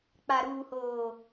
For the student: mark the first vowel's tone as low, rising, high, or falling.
low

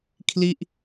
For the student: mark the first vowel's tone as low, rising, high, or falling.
falling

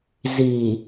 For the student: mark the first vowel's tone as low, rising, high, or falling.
low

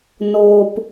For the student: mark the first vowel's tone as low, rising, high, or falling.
low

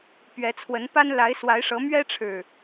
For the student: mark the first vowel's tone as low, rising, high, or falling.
rising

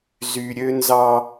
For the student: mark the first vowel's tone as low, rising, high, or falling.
high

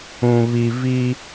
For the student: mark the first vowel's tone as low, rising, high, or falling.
low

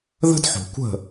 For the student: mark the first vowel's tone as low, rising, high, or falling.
high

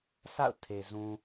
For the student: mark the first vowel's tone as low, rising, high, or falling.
falling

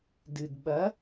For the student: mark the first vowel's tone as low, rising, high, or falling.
low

